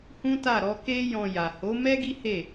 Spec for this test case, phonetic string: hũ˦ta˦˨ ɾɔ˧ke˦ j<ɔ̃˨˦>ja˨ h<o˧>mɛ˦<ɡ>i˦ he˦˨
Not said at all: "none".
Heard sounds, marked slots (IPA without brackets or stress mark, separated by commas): ɔ̃˧, o˨˦, ɡ